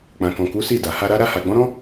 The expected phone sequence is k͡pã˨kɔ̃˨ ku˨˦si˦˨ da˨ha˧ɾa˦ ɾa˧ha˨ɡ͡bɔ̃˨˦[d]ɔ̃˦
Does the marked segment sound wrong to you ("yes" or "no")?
yes